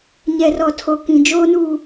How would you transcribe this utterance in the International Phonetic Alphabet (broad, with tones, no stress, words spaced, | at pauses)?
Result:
ɲɛ˨rɔ˨ tʰo˨kĩ˨ d͡ʒoː˦nuː˦˨